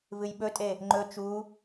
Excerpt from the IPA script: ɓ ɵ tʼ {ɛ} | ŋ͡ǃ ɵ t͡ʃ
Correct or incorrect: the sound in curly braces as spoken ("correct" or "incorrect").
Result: incorrect